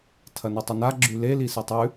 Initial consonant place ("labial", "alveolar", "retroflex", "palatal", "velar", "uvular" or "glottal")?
alveolar